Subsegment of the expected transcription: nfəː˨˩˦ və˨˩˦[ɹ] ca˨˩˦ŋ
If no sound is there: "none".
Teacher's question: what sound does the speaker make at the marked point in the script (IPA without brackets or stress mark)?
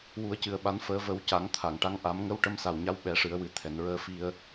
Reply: w